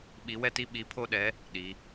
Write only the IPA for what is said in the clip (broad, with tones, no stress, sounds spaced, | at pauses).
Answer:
ɓ i˧˥ w ɛ˥ t i˥ ɓ i˧˥ pʰ o˥ ɗ ɛ˧˥ | ɗ i˩˧